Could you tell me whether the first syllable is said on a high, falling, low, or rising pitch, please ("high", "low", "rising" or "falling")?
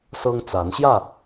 high